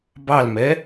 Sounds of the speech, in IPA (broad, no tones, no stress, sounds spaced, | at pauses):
b ɑ l m ɛ